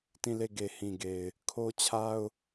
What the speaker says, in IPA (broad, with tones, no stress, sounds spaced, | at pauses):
t ĩ˦˨ l e˦˨ ɡ e˨ h ĩ˨ ɡ e˨ ɪ̯ | kʰ o˦ t͡ɕʰ a˦ ʊ̯